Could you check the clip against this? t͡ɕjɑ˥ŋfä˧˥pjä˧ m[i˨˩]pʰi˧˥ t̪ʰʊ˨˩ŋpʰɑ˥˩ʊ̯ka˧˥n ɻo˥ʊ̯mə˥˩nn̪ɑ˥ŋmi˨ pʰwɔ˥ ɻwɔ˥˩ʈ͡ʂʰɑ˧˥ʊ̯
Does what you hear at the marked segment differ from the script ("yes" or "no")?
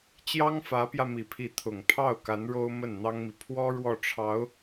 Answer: no